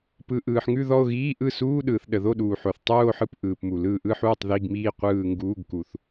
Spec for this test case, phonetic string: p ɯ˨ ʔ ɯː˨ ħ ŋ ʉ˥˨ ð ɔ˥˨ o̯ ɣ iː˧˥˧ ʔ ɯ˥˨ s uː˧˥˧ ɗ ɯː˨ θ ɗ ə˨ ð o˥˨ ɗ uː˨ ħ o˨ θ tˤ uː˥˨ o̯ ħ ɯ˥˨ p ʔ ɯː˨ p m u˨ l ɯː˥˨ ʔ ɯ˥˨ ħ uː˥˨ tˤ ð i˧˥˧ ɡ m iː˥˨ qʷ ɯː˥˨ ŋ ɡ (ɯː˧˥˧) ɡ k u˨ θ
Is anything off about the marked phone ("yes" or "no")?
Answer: yes